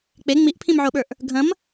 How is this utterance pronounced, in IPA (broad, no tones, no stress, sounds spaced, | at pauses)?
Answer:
k͡p e ŋ͡m i ʔ pʰ ĩ m ʕ o ɓ ə˞ ʔ | ɡʱ ɐ̃ m